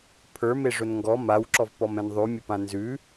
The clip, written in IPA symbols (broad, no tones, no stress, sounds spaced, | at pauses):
pʰ ə˞ m e ʐ ʊ n ŋ ɡ ɔ m a w ǁ ɔ v p ɔ m ɛ̃ n ðˤ ʉ mʲ ʊ p ã n z ʉ